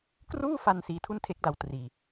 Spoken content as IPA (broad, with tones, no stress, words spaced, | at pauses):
kruː˥˩fa˧n siː˧tʰu˥˩ntʰe˦˥k̚da˧w triː˧